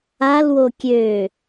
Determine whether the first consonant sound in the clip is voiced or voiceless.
voiced